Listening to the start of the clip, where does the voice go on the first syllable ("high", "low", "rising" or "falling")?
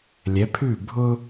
rising